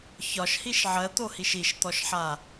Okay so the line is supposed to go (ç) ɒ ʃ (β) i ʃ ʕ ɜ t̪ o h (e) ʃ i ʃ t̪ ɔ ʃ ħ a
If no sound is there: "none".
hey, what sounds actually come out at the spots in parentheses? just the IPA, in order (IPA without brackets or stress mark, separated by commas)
ç, h, i